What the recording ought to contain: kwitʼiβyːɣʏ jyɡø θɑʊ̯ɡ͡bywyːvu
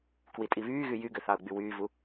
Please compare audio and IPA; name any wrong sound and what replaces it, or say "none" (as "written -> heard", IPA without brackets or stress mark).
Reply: ʏ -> y